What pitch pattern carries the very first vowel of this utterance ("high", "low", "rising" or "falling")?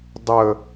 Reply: low